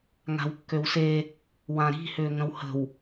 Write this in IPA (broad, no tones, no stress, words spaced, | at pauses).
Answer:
ŋa̤wkːøwse | wãɾi̤ hʏːŋə̃whə̤w